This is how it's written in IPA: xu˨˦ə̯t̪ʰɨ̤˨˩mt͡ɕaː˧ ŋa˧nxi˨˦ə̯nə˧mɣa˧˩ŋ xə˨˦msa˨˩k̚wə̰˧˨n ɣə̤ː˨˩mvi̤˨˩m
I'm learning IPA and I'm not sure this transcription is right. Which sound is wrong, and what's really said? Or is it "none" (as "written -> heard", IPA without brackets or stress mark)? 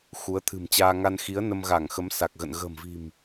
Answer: w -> ɣ